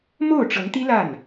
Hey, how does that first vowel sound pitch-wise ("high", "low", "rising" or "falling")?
falling